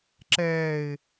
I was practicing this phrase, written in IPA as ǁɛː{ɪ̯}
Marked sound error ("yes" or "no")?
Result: no